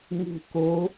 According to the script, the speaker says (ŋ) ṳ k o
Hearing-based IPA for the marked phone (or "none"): ŋ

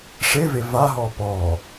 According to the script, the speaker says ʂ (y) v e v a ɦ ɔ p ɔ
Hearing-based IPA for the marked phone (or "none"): e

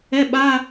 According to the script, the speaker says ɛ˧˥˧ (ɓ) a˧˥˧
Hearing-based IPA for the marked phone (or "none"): ɓ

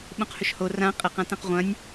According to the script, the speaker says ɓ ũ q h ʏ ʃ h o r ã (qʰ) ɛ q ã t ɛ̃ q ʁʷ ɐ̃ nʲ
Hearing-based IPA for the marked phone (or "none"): qʼ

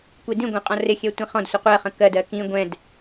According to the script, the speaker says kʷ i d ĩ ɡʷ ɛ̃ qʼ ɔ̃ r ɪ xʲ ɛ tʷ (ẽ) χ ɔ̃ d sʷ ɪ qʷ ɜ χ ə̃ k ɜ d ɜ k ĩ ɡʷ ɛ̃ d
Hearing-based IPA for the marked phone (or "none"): ĩ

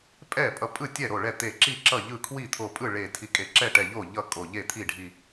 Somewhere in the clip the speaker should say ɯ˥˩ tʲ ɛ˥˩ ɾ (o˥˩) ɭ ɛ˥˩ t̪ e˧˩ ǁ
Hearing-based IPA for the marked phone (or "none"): o˥˩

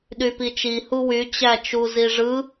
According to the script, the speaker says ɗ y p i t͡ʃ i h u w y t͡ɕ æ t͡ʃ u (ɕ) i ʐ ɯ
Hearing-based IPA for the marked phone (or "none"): z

